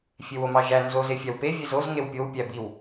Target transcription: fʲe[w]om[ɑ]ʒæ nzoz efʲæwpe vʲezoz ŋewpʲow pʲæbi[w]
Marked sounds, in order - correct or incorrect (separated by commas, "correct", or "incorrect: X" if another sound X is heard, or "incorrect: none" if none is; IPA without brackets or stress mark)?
correct, correct, correct